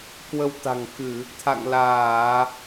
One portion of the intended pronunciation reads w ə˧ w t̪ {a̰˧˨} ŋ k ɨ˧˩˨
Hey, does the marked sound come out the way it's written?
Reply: no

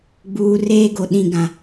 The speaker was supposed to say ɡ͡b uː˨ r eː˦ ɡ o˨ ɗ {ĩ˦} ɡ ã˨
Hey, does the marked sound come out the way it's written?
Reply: no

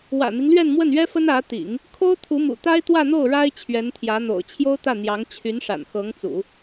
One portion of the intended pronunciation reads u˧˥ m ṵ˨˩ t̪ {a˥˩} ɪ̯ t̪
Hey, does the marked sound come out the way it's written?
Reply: no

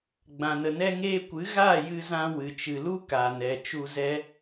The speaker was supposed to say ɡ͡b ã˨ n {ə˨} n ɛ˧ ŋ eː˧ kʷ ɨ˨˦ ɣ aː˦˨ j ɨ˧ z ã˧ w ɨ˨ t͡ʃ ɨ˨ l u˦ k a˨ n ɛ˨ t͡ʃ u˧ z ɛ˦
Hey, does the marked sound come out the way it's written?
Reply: yes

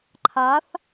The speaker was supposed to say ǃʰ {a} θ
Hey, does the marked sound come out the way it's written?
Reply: yes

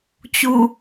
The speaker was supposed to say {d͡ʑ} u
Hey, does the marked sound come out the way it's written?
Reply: no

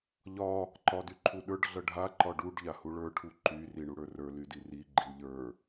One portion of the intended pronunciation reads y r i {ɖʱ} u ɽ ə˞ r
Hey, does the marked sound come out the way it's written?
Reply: no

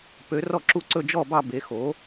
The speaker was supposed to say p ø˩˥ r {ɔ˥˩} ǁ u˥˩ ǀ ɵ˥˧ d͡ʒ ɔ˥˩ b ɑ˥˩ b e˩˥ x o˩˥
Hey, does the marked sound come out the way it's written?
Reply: yes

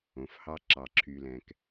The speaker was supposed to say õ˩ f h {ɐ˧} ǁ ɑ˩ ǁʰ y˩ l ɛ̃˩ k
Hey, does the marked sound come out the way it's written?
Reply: no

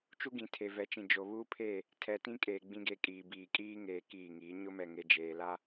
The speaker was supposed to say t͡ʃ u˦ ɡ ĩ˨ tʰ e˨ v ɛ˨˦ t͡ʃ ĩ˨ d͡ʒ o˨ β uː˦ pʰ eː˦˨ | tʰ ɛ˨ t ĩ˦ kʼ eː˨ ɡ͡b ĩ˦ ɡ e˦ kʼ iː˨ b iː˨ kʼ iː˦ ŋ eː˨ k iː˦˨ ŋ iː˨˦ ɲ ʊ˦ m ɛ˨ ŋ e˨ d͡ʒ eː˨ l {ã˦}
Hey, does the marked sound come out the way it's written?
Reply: no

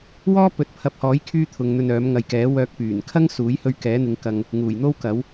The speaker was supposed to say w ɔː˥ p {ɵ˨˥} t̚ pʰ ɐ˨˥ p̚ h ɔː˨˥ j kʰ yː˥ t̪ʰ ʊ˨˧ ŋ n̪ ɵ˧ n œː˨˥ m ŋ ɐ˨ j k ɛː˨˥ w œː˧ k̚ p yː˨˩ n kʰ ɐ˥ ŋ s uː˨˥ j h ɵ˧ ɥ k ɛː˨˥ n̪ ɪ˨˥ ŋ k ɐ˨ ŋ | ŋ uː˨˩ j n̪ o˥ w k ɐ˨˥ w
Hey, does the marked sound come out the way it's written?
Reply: yes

